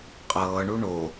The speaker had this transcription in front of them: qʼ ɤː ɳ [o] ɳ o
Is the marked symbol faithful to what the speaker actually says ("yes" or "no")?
no